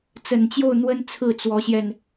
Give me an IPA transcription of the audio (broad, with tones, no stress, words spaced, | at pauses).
t͡sə˨˩nt͡ɕjo˥˩ʊ̯n̪wə˥n t͡sʰɹ̩˥˩t͡swɔ˧˥ɕjɛ˧n